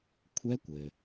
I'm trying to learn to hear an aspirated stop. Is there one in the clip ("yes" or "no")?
yes